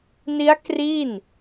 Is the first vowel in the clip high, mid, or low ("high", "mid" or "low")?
high